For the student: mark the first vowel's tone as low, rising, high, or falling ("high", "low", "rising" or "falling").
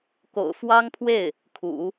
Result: low